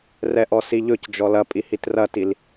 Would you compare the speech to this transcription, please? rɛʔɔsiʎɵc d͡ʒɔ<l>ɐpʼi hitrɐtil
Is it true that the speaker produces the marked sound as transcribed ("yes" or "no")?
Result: yes